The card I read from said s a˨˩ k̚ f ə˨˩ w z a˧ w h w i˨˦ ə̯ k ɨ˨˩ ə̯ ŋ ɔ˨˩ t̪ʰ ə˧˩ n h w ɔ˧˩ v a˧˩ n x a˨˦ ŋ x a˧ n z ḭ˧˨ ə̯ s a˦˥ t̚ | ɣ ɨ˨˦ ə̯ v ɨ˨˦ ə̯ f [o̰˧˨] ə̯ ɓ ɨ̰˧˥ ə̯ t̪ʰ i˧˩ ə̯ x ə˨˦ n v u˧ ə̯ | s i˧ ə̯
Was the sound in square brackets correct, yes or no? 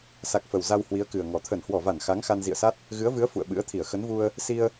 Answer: no